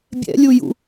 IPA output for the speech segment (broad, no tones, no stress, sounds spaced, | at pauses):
bʲ ɛ̰ lʲ u j ṵ